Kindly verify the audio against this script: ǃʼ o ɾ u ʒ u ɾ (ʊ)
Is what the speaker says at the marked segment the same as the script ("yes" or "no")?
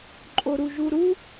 no